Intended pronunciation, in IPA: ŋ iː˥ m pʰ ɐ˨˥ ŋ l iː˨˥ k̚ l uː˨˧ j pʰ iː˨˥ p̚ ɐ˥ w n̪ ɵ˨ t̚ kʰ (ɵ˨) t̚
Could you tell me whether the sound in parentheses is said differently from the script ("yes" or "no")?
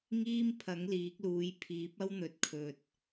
no